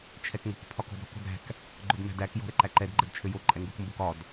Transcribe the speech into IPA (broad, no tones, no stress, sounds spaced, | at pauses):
t͡ʃʰ ɛ k ŋ o̤ k pʰ ɒ k ɔ̤ d ɾ ɔ̤ k o̤ d ɾ æ̤ k | ɡ͡ǃ ʊ d m æ̤ d æ k j ɔ̤ ɾ ɛ ǃ æ ǃ ɛ d ɡ͡ǃ ɛ d t͡ʃʰ ø j o ǃʼ ɛ ŋ ɡ ʊ k m b o k ɒ d